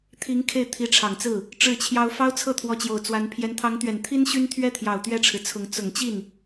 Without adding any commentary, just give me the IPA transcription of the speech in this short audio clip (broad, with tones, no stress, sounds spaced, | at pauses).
t̪ʰ i˧˥ ŋ kʰ e˥˩ ɪ̯ t̪ʰ i˧˥ ʈ͡ʂʰ ɑ˨˩ ŋ t͡s ɹ̩˥˩ | ʈ͡ʂ ɻ̩˥˩ t͡ɕʰ j ɑ˥ ʊ̯ f ɑ˥ ʊ̯ t͡sʰ ɤ˥˩ t̪ʰ w ɔ˧˥ t͡ɕ j o˨˩ ʊ̯ t͡s w a˧˥ n pʰ j ɛ˧˥ n t̪ʰ ɑ˧˥ ŋ t̪ ɥ ɛ˨˩ n t̪ʰ i˥ n ɕ y˥ n t̪ʰ ɥ ɛ˥ t̪ʰ j ɑ˨˩ ʊ̯ t̪ ɥ ɛ˥ ʈ͡ʂʰ ɻ̩˨ t͡sʰ ʊ˧˥ ŋ t͡s ʊ˨˩ ŋ t͡ɕ i˥˩ n